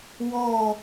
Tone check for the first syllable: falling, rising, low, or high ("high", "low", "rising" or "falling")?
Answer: falling